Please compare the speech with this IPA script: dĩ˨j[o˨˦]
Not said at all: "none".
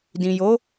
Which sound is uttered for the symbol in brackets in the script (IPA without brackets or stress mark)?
o˨˦